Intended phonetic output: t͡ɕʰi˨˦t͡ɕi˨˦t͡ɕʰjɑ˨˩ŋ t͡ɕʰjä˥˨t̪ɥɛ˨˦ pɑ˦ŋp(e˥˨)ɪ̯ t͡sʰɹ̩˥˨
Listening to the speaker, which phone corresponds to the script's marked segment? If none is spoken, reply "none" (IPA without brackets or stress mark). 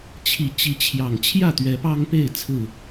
e˥˨